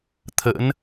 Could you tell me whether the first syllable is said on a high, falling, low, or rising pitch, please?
rising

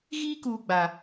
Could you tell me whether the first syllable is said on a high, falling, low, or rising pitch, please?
high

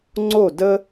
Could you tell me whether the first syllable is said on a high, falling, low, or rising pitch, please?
falling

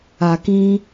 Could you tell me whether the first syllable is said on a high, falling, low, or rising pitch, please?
low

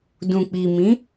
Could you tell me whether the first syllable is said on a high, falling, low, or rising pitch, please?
low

